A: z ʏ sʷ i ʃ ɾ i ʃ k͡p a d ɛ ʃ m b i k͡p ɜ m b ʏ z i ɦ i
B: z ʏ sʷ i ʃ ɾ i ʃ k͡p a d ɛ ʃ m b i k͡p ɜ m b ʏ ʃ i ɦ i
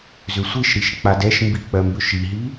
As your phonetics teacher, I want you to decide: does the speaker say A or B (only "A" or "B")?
B